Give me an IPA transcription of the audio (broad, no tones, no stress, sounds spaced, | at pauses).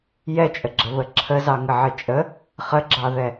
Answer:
j ɛ t͡ʃʼ ə ɡ͡ǁ ə β ə ǁʰ ə z ɑ ŋ ə ʕ ɘ t͡ʃʼ ə | χ ə ɡ͡ǁ ɑ ð ɛ